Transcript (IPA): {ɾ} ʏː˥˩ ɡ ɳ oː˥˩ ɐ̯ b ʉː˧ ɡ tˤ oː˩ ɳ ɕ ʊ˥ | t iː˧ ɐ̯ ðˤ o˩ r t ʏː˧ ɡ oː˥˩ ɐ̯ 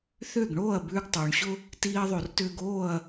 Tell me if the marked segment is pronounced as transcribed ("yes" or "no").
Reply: no